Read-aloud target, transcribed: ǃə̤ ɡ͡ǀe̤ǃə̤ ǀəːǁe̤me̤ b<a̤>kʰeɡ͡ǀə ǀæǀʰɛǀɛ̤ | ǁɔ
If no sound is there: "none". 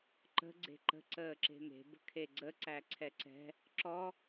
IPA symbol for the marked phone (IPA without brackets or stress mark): ə̤